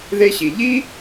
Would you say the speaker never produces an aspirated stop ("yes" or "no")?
yes